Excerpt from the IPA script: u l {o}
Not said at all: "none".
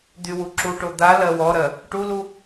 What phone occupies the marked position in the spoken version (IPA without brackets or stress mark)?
u